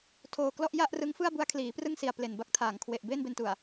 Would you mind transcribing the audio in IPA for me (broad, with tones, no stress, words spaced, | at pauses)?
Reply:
tʰoː˨˩klɔ˥˩ʔ ja˥˩ʔrɯ˦˥ŋfɯ˥˩a̯bu˦˥a̯ kʰliː˩˦prɯ˥˩ŋsi˨˩a̯ ple˨˩nba˦˥k̚tʰaː˩˦ŋ kʰwe˨˩ʔ beː˥˩nbe˧ntu˨˩a̯